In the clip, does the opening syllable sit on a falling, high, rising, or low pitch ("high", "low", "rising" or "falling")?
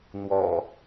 low